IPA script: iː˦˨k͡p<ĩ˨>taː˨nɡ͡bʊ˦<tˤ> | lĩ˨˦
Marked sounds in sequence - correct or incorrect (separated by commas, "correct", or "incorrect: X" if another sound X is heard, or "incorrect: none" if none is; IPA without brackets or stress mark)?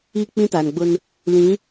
incorrect: ĩ˦, incorrect: n